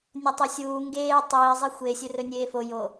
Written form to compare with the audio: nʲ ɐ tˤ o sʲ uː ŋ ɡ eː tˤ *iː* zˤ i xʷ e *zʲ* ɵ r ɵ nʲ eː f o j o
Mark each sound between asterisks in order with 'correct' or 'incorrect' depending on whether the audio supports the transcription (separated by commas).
correct, incorrect